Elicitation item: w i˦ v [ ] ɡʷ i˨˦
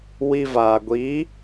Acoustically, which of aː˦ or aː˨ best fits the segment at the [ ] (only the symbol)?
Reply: aː˨